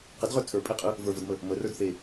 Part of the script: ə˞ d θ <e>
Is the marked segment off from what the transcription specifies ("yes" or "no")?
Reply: no